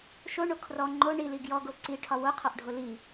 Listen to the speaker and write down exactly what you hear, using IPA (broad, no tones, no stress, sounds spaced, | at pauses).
ʃ o ɳ o kʰ r ɔ ŋ͡ǃ o ɳ i l i ɡ j ɔ ɡ o ǀ i ʈʰ ɒ w o qʰ ɒ ʔ ɖʱ o l i